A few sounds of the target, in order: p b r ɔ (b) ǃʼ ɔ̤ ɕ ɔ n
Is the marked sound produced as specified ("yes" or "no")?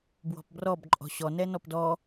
yes